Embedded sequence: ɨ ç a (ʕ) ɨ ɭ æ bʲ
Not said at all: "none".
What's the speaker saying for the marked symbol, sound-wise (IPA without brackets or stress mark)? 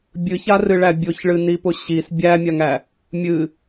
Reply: r